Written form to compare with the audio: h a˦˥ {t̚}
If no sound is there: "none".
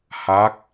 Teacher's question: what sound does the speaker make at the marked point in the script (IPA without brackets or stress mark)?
k̚